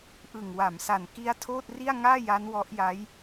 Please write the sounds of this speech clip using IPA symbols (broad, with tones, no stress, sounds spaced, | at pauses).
ʔ ɯ˨˩ ŋ w a˩˦ m s a˨˩ n k i˦˥ a̯ tʰ oː˥˩ t̚ r i˥˩ a̯ ŋ aː˥˩ j a˦˥ n w ɔ˦˥ ʔ j a˦˥ j